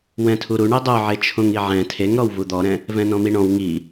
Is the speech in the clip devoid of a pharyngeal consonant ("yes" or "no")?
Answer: no